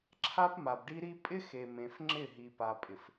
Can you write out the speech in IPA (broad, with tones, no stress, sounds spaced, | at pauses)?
ǁʰ a˦ p m a˨ b ɖ i˦ ɾ i˦ pʼ ɪ˦ x e˨ m ẽ˨ f ŋ͡ǁ ɪ˦˨ ɦ i˨ p a˨ pʼ ɪ˨ f